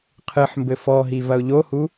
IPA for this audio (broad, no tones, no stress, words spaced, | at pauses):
qʰɨħmbɘ fɔɦi vɐʊ̯ʎohu